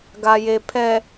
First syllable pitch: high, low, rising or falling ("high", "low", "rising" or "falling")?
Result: low